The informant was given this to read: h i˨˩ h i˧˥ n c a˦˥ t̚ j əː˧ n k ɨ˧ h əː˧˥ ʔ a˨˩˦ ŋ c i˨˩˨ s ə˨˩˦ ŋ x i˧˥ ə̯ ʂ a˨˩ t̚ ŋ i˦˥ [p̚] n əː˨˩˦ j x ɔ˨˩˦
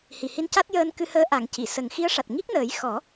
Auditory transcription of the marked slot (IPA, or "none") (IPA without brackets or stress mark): k̚